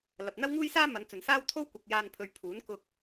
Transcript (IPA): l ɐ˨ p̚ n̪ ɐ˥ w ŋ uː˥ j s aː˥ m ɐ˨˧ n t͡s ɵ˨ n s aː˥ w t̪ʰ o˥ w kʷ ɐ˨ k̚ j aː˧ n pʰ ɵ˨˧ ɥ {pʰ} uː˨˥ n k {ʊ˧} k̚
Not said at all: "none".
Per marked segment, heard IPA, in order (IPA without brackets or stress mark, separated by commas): pʰ, ʊ˧